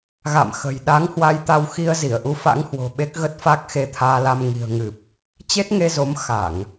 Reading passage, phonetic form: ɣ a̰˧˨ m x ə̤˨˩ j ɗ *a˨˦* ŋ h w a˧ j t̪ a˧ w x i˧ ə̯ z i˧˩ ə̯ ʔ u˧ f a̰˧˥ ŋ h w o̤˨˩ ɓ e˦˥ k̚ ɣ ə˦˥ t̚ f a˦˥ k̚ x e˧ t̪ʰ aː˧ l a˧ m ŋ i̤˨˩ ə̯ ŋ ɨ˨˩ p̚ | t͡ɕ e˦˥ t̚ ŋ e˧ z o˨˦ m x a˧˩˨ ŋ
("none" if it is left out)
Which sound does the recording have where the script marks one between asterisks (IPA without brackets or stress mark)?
a˨˦